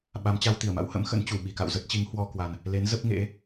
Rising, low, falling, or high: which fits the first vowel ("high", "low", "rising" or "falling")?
rising